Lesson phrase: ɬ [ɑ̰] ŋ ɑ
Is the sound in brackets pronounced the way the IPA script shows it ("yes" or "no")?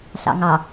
yes